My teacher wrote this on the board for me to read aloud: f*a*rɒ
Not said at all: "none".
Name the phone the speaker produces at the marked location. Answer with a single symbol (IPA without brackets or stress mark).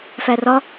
æ